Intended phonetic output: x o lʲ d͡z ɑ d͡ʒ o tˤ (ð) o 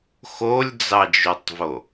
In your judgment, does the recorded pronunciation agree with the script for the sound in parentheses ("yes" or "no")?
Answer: no